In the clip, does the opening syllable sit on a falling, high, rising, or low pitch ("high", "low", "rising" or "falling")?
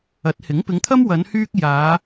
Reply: rising